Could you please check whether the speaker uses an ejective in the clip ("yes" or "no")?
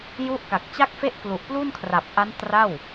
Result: no